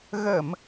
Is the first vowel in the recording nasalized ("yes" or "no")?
no